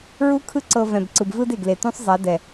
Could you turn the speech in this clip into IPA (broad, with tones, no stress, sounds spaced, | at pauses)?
ɹ u˦ kʰ ɯ˦ ǀ ɤ˨ v ɛ̃˨ b ǀ ɯ˨ b v ɯ˦ d e˨ ɡ l e˨ t ũ˦ sˤ zˤ a˨˦ d ɛ˨